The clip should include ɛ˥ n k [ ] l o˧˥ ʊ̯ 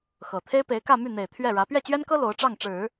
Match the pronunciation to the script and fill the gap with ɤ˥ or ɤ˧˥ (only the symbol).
ɤ˥